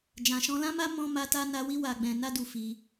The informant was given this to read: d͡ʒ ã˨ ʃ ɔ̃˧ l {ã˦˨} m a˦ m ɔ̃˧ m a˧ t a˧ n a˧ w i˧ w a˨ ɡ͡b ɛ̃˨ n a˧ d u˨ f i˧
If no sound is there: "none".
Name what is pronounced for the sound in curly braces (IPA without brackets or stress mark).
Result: ã˦